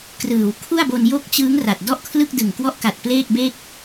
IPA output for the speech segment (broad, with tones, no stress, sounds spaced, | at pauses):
k r ɯː˩˦ w kʰ u˥˩ a̯ b o˧ n j o˦˥ k̚ t͡ɕ ɯː˦˥ ŋ r a˨˩ t̚ d ɔ˥˩ ʔ kʰ l ɯ˥˩ k̚ d ɯ˨˩ ŋ k w ɔ˦˥ ʔ k a˨˩ t̚ p l eː˥˩ k̚ b e˥˩ k̚